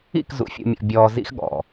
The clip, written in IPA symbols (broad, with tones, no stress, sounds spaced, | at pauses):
ḭ˦˨ k z ṵ˨ fʲ ṵ˨ mʲ ɔ̰˨ bʲ ɔː˧ z ḭ˦ x ɠ ɔ̰˨